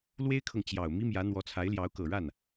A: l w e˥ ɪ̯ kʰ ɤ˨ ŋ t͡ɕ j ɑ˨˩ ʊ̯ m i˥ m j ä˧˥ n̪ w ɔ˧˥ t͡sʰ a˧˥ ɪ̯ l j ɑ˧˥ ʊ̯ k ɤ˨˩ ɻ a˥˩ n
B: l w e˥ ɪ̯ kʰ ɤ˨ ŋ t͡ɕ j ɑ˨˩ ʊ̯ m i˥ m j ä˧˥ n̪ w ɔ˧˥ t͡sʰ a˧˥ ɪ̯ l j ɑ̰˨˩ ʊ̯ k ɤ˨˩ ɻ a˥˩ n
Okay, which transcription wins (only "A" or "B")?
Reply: A